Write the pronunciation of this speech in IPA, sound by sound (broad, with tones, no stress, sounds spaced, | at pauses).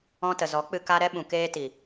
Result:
ɔ̃˧ t ə˨ z ɔ˨˦ k͡p ɨ˧ k a˦ ɾ ɛ˦ ɓ ũ˨ k eː˧ t i˨